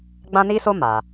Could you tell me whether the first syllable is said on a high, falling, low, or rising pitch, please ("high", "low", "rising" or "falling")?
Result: high